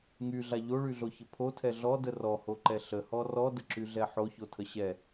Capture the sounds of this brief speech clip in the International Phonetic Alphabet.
ŋyɮa ʎoɭyɮoçə pʰotʰɛ ɮɔdə rɔhoǃɛ ɬəhɔ rɔdəǁyɮɛ ħoçotʰə ɕɛ

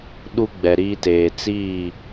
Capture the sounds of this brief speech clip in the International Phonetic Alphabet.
ɗu˦ɡ͡bɛ˨ɾiː˦teː˨ t͡siː˦˨

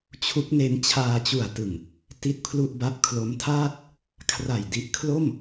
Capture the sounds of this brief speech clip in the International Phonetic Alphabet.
t͡ɕʰu˦˥k̚ne˦˥n t͡ɕʰaː˧t͡ɕu˨˩a̯tɯ˨˩ŋ | ti˥˩t̚pʰlu˥˩ʔ ba˦˥p̚kʰlo˦˥mtʰaː˥˩t̚ | kʰra˨˩j di˦˥ʔ kʰlo˥˩m

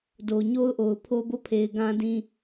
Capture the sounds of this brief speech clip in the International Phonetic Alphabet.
do˨ɲo˦ʊ̯ʔo˨ʊ̯ pʰo˦bo˦˨pʰe˨ɪ̯ ɡã˦ dĩ˦

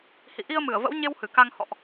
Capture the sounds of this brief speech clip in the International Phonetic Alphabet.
hḭ˧˨ ʔi˧ə̯mɨ˧˩ə̯və̰˧˥wɲe˧w hɨ˧˩ka˧ŋ hɔ̰˧˨ʔ

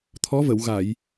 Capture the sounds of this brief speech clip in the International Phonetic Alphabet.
t̪ʰɔ˧˥və˨˩˨w ɣa˨˩˨j

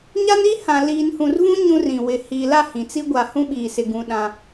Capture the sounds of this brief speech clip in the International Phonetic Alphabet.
ɲa˦ni˦hã˨ liː˨nhũ˨rvũ˦ ɲũ˦rĩ˨ wɪ˨ hiː˨la˦˨ hĩ˨t͡si˦ ɡʷa˨hũ˦ɓiː˨sɪ˨ ɡũ˦ɗã˦

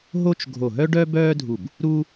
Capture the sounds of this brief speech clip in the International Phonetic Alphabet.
ɦo˥t͡ʃ ɡʱo˧˩ɦœ˥ɖœ˥ bœː˥dʱu˧˩b | ɾu˥

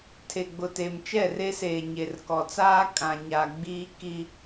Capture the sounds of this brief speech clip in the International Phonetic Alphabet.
tʰe˨ɡ͡bʊ˨te˨m t͡ʃɛ˦˨re˦seː˨ ɲe˨rkɔ˨t͡saː˦ kʼã˨ɲa˨ɡ͡biː˦ ki˦

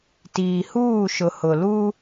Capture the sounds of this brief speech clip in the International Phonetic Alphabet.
tiː˨huː˦˨ʃʊ˨ hʊ˨lu˦

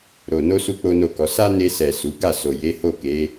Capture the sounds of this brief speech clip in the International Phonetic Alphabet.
ɾo˨ no˧ su˦k͡po˦no˦˨kɔ˨˦ sa˦ne˧sɛ˨ su˨˦ ɡa˦˨so˨je˨˦ ho˦˨ke˨˦

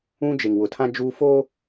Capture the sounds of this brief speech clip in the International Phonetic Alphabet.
ũ˦d͡ʒe˨ŋwʊ˨tʰã˦ d͡ʒuː˦foː˦

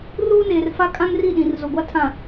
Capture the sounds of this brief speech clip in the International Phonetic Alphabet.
ruː˦neː˨rfa˦ kʼã˦ŋri˦˨ɗĩ˨r zo˨ɡʷa˦tʰã˨

